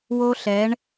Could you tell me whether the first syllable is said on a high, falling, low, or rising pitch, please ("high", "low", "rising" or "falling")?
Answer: high